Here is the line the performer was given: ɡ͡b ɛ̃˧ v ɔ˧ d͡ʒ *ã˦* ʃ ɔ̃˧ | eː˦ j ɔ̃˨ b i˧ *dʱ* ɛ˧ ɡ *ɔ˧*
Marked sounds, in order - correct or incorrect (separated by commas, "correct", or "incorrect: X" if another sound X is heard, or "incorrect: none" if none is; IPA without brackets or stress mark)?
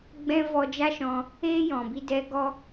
incorrect: a˦, incorrect: d, correct